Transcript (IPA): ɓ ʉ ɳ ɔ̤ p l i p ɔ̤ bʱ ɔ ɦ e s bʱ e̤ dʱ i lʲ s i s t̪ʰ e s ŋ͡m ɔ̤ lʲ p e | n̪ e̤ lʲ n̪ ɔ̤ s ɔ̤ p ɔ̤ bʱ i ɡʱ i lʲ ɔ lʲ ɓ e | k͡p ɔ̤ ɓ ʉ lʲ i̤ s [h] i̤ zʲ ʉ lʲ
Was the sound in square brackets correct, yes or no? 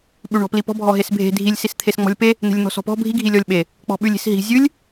no